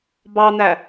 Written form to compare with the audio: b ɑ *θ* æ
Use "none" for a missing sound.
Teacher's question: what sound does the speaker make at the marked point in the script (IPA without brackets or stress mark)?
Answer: n̪